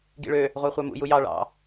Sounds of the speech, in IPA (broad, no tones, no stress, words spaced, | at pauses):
ɡḭɭø | ʁʷɑχʷɑmṵ jujɑ ɭɑ̰